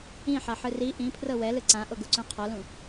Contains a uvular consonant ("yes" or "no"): yes